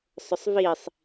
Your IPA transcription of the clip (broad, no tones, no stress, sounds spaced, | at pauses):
sˤ ʊ sˤ v i sˤ